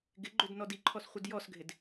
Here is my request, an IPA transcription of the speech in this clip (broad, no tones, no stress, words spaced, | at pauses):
ɡɪɡ͡ǃʏd nɔdiǃʰɔs χʷədjɔsɡʱɪd